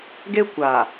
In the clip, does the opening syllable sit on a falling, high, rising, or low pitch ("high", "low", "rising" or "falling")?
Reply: high